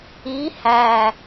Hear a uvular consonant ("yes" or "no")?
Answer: no